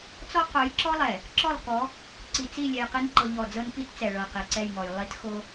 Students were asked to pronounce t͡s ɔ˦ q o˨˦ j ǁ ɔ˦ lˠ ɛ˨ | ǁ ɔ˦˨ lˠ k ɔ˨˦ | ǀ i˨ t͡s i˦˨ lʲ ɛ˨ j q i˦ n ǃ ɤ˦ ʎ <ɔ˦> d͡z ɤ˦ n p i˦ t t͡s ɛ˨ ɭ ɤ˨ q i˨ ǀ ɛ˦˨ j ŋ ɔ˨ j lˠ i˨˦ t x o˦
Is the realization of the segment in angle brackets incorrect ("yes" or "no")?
yes